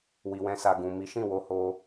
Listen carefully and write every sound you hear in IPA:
wi˨wɛ̃˧sa˨ ɡũ˨ mi˨˦ʃĩ˦˨ wo˧ho˧

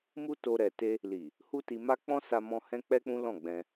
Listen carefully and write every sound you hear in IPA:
mu˦to˧ ɾɛ˨te˧ | li˨ | hu˦ti˧ma˦ k͡pɔ̃˦sa˧mɔ̃˧ hɛ̃˦k͡pɛ˦k͡pũ˦lɔ̃˦˨ ɡ͡bɛ̃˧

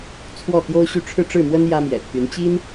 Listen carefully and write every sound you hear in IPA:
t͡sʰwɔ˥˩t̪jo˥ʊ̯ɕy˥˧ ʈ͡ʂʰɻ̩˥˧ʈ͡ʂɻ̩˥˩mwə˥n jä˥mjɛ̰˨˩t̪ʰy˧˥n t͡ɕi˥n

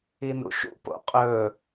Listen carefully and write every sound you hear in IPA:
inṵʃṵ po̰qʼɵ

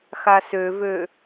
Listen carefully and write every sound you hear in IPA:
xasøvø

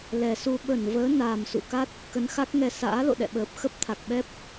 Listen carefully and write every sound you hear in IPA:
lɛ˨˩su˧ ɓə˧˩nvəː˨˦ naː˨˩msṵ˧˨ka˦˥t̚ | kə˨˦nxa˦˥k̚ŋɛ˧ sa̰ː˧˥lo̰˧˨ɗɛ̰˧˨ɓəː˨˩p̚ xə˦˥p̚t̪ʰa˨˩k̚ɓɛ˦˥p̚

